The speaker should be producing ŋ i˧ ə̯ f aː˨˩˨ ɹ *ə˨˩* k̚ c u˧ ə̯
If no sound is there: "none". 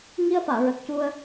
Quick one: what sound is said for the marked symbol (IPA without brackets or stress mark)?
ə˨˩